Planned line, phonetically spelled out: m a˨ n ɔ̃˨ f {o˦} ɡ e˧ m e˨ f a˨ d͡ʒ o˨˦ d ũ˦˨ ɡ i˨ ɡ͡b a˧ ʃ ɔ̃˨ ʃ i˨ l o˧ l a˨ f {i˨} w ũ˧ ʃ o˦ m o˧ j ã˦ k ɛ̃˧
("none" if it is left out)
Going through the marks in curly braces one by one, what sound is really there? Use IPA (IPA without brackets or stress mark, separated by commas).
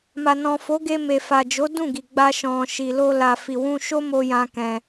o˨˦, i˨